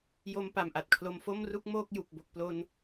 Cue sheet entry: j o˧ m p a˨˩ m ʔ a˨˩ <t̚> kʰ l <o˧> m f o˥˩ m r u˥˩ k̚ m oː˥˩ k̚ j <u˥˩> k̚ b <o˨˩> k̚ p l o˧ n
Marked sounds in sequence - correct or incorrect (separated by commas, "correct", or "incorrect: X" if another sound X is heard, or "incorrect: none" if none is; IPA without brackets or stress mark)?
correct, correct, incorrect: u˨˩, correct